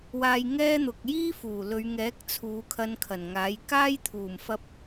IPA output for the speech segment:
w aː˧ j ŋ ɛː˥ n̪ ʊ˨ k̚ j iː˥ f uː˨˩ l ɵ˨˧ ɥ ŋ ɛː˨˥ k̚ t͡sʰ uː˨˧ kʰ ɐ˧ n kʰ ɐ˨˩ n ŋ aː˨˥ j k aː˥ j t̪ʰ uː˨˩ m f ɐ˧ p̚

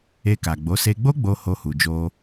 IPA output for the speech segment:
e˧ k a˨ ɡ͡b o˨˦ s e˧ ɡ͡b o˦ ɡ͡b o˧ h o˧ h u˨ d͡ʒ o˧

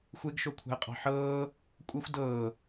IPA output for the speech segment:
xʷ e ɡ ʃ o kʷʰ ɑ̤ ə̯ qʼ ɑ̤ ħ ɤː | kʷʼ ʌ xʷ d ɤː

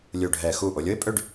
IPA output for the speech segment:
lʲ u˧˩ ɖʱ ɛ˧˩ x u˧˩ ʔ o˩˧ lʲ o˥ ɪ̯ pʼ ø˥˧ ɖ

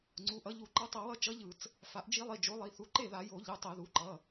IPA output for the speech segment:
ŋ͡ǀ u˩˧˩ ʔ ʌ˩˥ ʎ u˧˩˧ ǃ ʌ˧˥ tˤ ʌ˧˩˧ w ʌ˥˩ t͡ʃ ʌ˧˥ ʎ ɯ˧˩˧ t͡s | f a˩˥ ʔ d͡ʒ i˧˥ lˠ i˩˧˩ d͡ʒ o˩˥ lˠ i˩˧˩ θ u˩˥ ǃ e˥˩ ð a˧˩˧ j o˧˩˧ ʎ ɯ˩˧˩ tˤ ɛ˧˩˧ ð u˩˧˩ ǃ ʌ˩˧˩

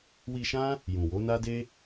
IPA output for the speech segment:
w i˧ ʃ ã˦ | j ũ˨ w o˨˦ n a˦ d e˦

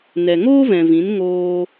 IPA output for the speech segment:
n ɛ˨ ŋ oː˦ v ɛ̃˨ v ĩ˨˦ n ŋ oː˦

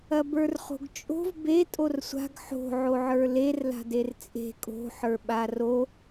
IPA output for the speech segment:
ɐ b ə˞ r χ o̤ ɡ t͡ʃʼ o̤ v b e tʼ o r sʷ a̤ ɡ ħ o̤ ʕ o ʕ ə˞ l e r l a̤ d e r t͡sʼ e̤ kʼ o̤ ħ ə˞ ɓ a r o

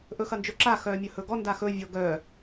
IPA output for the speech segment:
ʔ ɵ x ɐ n d͡ʒ ɵ ǁ a x œː mʲ ɵ h ɵ ɡ ɔ n d a x ɵ vʲ ɤ ɡ œ

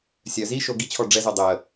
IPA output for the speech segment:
sʲ œ z i ʃ o ɡ i t͡ɕʰ ɔ ɖ͡ʐ ɛ z œ dˤ əː

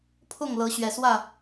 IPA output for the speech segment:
pʰ ʊ˥˨ ŋ l ɤ˨˦ ɕ ɥ ɛ˨˩ s w ä˥˨

